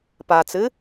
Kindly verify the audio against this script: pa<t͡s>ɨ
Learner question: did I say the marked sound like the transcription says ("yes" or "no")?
yes